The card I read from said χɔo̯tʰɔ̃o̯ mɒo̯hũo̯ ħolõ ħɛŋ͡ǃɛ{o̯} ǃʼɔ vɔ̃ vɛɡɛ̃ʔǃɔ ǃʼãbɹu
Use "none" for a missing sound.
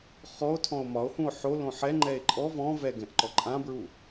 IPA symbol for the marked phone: e̯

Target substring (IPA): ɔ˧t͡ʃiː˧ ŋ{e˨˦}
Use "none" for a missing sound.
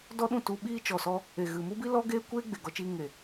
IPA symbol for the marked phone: e˨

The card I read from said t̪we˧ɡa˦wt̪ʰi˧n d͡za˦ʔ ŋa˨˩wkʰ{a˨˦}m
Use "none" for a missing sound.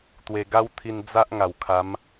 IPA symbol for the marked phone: a˨˦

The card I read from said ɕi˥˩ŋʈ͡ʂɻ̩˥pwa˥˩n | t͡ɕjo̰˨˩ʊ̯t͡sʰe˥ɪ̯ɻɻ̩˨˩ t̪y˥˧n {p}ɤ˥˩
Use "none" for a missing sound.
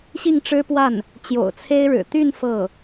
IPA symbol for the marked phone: f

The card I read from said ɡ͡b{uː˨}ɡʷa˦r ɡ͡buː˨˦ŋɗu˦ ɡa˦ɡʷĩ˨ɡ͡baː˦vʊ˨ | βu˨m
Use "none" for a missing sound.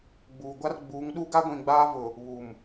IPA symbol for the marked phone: uː˨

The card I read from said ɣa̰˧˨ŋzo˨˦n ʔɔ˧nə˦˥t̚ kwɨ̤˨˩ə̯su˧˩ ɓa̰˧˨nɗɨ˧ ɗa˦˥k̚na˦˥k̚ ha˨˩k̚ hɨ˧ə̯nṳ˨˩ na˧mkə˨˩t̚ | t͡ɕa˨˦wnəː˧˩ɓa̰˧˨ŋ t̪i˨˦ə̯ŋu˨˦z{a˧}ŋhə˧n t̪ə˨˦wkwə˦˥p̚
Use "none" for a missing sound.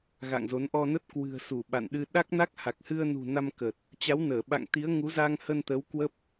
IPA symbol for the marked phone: a˧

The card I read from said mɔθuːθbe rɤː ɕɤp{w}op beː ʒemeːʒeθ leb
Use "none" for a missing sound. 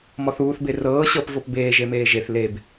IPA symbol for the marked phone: v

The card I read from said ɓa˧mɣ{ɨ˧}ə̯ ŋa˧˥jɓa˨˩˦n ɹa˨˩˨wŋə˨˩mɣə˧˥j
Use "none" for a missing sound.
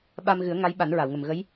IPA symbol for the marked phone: ɨ˨˩˦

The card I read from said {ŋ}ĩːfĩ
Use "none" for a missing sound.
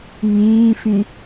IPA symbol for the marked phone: ŋ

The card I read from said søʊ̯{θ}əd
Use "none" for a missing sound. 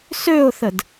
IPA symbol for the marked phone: θ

